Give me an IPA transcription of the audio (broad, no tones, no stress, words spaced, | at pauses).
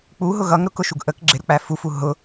k͡puɦʊ ɣʌŋ ɾʊkʊʃuɡ ʔək ɡ͡ǁɪɾʊk͡pæ fufu ɦʊ